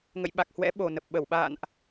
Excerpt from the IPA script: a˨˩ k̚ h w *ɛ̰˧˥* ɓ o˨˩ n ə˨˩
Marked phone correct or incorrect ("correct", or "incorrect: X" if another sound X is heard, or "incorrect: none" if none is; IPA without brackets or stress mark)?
correct